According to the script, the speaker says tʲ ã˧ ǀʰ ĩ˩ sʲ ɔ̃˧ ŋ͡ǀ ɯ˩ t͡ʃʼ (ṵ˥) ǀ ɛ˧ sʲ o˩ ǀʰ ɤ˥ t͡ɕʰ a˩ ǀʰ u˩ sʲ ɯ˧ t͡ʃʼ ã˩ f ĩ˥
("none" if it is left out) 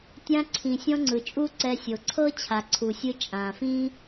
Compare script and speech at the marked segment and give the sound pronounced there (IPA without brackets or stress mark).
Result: u˥